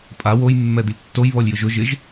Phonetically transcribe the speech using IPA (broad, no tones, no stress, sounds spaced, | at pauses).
pʼ a w o j mː ɛ d̪ ɪ lʲ tː o j β ɔ lʲ j ʊ ʒ ʊ ʒ ɪ ʒ